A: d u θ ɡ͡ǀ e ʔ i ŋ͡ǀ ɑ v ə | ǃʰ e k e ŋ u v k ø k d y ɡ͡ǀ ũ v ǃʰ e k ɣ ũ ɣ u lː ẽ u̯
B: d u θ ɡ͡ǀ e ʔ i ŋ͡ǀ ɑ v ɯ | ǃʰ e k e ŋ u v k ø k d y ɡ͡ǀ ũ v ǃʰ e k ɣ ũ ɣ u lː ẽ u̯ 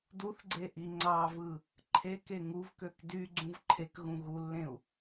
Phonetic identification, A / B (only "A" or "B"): B